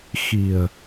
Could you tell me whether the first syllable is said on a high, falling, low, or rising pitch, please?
low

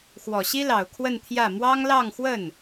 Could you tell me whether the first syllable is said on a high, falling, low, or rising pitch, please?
low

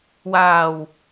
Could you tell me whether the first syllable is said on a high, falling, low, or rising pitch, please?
low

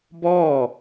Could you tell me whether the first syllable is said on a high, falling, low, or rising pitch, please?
falling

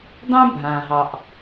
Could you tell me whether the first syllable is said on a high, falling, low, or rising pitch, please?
high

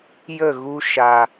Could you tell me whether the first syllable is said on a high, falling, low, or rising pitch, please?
falling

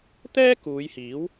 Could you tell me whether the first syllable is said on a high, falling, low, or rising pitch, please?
high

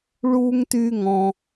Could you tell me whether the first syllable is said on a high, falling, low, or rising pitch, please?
high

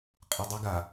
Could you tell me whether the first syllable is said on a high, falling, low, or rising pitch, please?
low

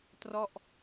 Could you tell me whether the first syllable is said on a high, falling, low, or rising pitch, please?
falling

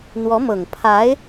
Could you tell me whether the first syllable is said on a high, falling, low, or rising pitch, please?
rising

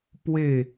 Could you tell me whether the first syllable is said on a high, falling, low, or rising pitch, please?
falling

